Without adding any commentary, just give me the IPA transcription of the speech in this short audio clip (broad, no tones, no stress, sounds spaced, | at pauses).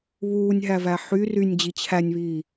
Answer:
β uː nʲ ɦ æ v æ ħ y r y nʲ d͡ʑ i t͡ɕʰ æ nʲ β iː